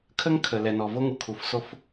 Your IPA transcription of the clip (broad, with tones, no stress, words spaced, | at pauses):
kʰə˦ŋ kʰə˨ lɛ˨nɔ˨vo˦ŋu˨ kʰu˨fso˦f